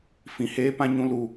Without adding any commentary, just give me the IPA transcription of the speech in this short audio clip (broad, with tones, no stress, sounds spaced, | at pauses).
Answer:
f ĩ˧ h eː˦ p ã˦ ɲ ũ˦ l u˦